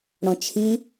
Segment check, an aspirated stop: present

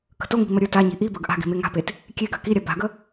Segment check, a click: absent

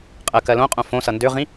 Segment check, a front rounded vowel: present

